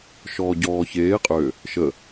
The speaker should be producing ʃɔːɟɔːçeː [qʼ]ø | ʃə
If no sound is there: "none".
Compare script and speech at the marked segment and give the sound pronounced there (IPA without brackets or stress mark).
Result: qʼ